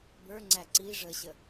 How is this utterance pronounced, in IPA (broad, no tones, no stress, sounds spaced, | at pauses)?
b ə˞ ŋ͡ǀ æ ǀ i ʐ ə ɕ ə